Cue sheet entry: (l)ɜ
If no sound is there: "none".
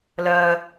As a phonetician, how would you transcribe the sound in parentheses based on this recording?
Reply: l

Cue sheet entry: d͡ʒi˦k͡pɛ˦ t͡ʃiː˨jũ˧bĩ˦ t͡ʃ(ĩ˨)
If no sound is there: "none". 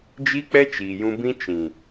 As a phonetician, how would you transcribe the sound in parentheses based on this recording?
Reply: ĩ˨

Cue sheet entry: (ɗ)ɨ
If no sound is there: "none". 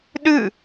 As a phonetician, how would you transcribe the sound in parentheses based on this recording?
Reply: ɗ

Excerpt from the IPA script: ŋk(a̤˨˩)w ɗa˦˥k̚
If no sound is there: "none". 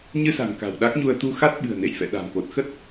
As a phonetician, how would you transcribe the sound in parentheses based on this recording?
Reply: a̤˨˩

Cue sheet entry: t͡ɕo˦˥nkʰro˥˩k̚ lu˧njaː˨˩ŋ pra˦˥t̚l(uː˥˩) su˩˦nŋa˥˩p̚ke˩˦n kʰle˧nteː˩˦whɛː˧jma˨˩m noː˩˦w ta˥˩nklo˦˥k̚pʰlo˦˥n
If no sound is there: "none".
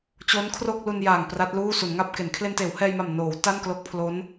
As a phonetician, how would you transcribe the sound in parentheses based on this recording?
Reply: uː˥˩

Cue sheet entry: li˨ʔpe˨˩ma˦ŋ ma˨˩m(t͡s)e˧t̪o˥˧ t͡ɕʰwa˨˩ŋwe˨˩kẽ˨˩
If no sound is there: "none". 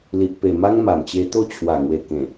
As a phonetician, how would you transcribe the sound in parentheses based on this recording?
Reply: t͡ɕ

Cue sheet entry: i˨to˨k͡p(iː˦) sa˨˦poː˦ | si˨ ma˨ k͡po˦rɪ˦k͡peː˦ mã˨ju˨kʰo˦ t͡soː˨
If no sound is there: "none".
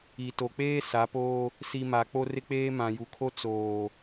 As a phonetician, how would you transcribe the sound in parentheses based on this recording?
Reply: eː˦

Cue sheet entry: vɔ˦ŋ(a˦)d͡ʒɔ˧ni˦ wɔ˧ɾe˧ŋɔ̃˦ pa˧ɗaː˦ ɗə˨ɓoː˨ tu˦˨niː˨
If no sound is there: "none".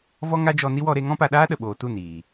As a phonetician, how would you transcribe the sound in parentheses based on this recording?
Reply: a˦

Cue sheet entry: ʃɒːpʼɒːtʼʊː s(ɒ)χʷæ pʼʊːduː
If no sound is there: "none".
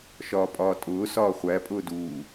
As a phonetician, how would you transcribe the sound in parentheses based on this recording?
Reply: ɒː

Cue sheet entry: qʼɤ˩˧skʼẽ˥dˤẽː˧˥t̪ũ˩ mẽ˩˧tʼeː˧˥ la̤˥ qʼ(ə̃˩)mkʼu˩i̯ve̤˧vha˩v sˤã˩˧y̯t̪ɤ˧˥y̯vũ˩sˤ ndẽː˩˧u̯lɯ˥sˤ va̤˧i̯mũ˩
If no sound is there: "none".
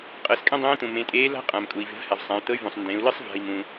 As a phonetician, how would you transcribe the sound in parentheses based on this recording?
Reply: ã˩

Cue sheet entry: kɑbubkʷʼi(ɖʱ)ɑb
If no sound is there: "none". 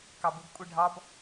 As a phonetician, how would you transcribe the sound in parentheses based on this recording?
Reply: ɖʱ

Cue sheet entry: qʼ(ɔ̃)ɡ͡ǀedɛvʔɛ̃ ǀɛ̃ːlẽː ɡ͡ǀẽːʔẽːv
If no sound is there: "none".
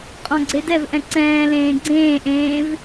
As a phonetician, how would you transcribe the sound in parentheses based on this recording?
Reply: ɔ̃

